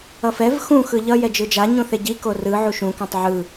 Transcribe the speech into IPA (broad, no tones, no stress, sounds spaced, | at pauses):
ʌ f ɛ v x ũ x ɯ ʎ ʌ j ɛ d͡ʒ ɯ d͡ʒ a ɲ ũ θ e ɟ i k o r ɯ ʕ u ʃ ũ k ɛ̃ tˤ ʕ ɯ